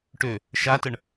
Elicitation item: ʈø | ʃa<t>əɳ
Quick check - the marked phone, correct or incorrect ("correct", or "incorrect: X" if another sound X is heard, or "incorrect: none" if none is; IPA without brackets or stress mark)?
correct